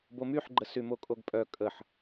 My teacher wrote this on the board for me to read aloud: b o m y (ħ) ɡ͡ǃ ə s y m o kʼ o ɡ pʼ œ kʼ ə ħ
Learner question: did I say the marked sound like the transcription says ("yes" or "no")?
yes